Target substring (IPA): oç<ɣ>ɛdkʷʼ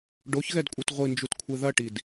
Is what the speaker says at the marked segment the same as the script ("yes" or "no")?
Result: yes